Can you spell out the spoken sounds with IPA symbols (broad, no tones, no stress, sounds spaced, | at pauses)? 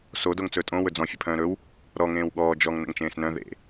s o d o ŋ t͡s ɵː tʼ õ w ɵ d͡z ɔ̃ fʲ ɘ pʰ œ̃ː ɾ ɵ w | ɾ ɔ ŋ ẽː w ɠ ɔː d͡ʒ ɔ ŋ n ə̰ ŋ t͡ʃ ẽː s n œ̃ ð ḛ